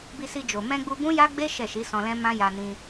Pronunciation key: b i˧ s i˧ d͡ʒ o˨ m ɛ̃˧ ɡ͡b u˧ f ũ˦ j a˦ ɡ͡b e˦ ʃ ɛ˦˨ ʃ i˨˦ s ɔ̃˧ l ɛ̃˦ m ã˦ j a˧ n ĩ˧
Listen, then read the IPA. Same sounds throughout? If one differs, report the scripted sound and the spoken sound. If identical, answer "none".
f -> b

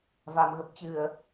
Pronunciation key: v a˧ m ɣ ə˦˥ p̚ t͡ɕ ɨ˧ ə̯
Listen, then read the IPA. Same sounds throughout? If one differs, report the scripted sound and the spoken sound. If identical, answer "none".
none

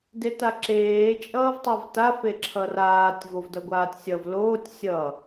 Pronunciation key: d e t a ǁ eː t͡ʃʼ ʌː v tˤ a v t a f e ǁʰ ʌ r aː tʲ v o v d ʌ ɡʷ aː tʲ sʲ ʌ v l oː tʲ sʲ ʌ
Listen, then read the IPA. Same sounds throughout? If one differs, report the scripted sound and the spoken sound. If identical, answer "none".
none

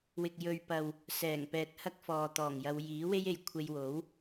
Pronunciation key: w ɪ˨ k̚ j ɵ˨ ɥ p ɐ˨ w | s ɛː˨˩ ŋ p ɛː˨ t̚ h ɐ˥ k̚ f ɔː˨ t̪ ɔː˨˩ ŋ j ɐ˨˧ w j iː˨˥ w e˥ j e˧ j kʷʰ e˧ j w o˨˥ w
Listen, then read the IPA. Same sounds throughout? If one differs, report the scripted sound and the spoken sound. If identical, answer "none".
none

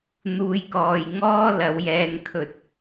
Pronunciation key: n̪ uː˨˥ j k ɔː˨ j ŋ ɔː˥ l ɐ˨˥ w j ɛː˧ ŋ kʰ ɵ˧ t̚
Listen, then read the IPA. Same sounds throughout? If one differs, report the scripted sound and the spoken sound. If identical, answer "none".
uː˨˥ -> uː˧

